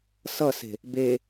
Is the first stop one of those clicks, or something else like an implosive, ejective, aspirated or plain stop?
plain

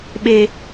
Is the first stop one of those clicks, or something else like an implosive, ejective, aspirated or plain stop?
implosive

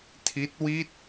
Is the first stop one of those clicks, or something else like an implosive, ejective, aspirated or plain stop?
aspirated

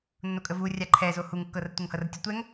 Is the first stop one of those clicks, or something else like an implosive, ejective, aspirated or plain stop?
ejective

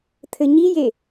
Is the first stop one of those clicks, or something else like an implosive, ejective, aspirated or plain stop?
aspirated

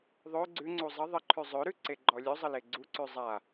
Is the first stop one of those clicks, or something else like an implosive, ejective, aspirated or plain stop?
click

